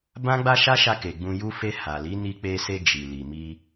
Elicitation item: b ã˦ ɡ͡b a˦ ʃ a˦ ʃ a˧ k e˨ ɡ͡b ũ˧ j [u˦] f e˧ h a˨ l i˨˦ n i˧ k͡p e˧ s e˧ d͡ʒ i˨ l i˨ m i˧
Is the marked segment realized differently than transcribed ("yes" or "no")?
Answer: no